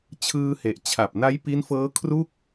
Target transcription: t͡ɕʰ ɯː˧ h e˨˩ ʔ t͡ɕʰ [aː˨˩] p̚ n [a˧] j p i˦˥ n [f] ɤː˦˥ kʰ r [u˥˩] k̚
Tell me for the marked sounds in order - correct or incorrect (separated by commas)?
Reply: incorrect, incorrect, correct, correct